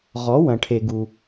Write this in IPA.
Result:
ʁ ɔ˩˥ w ɐ̃˩ ʈʰ e˩ ɡ u˩

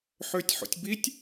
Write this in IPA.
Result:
ħ ø tʲ ħ o̰ tʲ b i tʲ

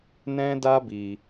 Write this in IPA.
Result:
n ɛ̃˦ d a˦ b i˧

